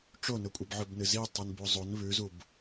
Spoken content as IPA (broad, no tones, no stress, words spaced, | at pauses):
ʈ͡ʂonɵkʷʼɨb ʕɵbnɨzi tˤɨnbuzˤon βʉzub